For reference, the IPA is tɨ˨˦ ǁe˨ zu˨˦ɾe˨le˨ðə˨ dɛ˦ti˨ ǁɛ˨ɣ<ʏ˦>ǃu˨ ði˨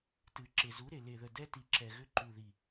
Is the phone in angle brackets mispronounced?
no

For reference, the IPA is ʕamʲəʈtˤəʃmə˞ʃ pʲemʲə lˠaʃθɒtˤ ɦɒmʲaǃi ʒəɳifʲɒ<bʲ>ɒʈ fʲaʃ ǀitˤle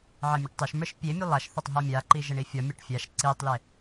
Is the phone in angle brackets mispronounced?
yes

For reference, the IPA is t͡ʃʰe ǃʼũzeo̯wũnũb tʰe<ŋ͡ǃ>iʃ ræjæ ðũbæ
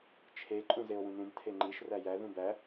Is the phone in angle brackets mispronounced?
no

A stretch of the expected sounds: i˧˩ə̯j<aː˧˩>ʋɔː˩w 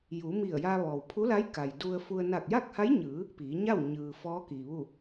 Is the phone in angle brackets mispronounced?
yes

